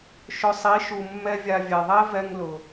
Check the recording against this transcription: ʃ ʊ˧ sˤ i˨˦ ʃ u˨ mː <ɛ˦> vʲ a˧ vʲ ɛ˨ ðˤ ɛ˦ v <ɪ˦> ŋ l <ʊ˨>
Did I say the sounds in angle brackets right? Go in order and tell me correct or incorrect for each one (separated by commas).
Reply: correct, incorrect, correct